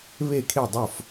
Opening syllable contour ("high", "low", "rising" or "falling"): falling